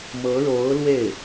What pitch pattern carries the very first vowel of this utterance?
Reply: rising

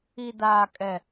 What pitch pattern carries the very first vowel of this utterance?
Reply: high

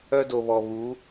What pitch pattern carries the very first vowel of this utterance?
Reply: high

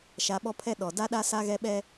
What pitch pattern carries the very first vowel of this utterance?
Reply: rising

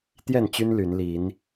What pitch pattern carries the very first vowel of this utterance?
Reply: falling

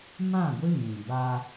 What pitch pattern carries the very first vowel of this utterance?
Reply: falling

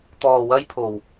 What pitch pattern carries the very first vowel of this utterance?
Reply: low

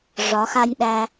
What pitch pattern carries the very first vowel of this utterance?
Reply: rising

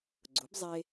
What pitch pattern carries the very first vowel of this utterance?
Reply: rising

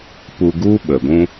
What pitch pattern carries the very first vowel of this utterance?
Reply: low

